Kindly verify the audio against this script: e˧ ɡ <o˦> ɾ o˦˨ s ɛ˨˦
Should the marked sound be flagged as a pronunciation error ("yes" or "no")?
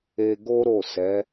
no